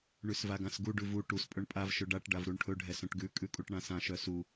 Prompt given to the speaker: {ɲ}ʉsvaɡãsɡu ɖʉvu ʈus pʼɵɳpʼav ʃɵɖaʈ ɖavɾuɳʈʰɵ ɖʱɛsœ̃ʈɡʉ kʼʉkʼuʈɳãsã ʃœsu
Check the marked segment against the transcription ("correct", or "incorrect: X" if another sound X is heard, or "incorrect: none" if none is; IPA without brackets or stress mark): incorrect: ɳ